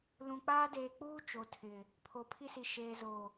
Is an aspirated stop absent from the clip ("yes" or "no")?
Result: no